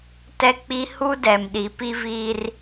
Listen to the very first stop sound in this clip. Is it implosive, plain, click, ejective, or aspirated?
plain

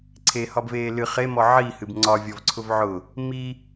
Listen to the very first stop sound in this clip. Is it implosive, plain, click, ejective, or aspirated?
click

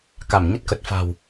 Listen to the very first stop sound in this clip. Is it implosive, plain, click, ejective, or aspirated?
plain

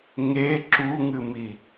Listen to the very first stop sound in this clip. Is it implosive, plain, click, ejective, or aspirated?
click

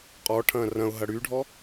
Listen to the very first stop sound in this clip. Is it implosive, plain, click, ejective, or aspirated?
ejective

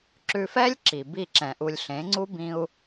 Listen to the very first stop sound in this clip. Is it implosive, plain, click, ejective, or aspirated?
click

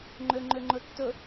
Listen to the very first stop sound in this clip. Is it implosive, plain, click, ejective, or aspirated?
click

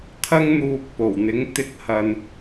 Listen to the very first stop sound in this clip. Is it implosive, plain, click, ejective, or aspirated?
aspirated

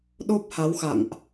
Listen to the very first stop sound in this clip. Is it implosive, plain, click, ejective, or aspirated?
implosive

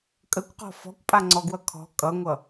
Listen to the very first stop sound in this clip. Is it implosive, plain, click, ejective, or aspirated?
ejective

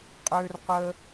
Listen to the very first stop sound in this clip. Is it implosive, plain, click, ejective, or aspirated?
ejective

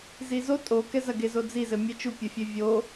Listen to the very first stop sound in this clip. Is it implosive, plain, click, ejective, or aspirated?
ejective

